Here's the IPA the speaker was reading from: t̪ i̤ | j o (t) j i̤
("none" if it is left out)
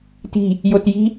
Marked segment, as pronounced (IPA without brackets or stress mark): t